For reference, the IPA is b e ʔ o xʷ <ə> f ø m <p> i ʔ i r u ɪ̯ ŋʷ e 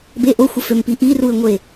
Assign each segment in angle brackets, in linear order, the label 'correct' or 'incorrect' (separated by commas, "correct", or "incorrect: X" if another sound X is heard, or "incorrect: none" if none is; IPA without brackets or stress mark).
correct, correct